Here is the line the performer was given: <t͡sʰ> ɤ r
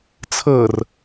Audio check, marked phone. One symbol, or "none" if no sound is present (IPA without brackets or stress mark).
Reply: t͡sʰ